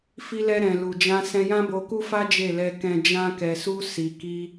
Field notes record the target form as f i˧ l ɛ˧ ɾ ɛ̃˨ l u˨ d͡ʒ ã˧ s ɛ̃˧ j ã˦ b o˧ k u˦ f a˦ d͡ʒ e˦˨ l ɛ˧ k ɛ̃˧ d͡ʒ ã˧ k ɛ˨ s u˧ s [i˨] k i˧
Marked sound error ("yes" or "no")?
no